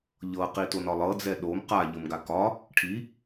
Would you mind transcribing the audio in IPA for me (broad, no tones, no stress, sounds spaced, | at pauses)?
ʎ ɤ q i t o n ɒ lˠ ɤ d͡z ɛ ɗ o m q a ʎ ɤ m ɡ a k ɒ | ʈʰ i